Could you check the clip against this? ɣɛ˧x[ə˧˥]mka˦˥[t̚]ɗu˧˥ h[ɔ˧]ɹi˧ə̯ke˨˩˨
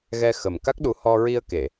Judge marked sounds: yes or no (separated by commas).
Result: no, no, yes